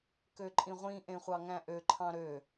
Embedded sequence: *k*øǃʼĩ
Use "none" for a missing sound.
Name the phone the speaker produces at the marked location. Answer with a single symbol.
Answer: k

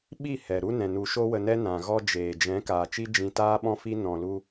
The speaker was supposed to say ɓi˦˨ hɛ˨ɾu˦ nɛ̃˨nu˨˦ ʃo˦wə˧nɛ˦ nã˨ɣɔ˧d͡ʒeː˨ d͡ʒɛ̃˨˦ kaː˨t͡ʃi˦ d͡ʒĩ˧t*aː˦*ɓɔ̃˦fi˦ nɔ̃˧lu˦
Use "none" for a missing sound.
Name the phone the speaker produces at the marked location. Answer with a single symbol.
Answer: aː˦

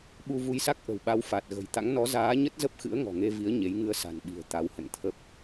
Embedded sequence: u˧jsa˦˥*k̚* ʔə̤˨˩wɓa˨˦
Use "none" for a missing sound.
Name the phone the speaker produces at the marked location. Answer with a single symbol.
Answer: k̚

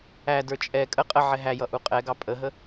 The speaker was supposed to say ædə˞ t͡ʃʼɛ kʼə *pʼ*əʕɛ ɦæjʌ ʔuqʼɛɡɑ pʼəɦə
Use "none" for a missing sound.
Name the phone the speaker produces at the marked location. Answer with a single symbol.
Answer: qʼ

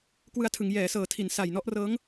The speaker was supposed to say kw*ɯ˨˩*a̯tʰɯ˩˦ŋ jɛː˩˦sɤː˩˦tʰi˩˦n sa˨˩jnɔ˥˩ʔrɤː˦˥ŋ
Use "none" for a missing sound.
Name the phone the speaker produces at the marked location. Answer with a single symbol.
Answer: ɯ˧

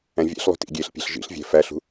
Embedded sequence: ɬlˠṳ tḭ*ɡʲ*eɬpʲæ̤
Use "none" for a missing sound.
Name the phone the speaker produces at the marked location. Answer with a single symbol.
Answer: ɡʲ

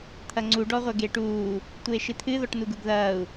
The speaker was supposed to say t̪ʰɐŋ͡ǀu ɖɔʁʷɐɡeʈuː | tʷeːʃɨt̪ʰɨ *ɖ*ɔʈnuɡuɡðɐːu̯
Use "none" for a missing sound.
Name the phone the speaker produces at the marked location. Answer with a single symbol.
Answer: ð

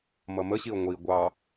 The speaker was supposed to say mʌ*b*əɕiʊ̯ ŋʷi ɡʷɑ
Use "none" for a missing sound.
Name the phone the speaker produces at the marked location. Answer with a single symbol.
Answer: m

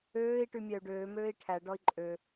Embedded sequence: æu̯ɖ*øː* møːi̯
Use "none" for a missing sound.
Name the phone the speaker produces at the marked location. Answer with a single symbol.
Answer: øː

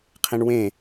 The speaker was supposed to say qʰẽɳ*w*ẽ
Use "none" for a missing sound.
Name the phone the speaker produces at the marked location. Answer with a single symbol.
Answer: w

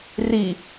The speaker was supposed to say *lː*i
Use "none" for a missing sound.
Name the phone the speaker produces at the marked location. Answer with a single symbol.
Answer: r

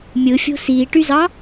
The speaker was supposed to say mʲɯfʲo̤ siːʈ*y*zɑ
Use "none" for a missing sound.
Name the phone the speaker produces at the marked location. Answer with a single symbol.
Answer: y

